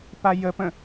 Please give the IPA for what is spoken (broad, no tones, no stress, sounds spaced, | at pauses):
p a j ə p ə̃